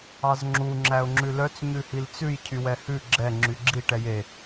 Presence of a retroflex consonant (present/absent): present